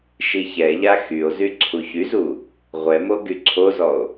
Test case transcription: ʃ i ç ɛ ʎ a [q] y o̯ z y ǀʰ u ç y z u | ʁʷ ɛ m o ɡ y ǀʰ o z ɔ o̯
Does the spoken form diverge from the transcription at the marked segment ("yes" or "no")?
yes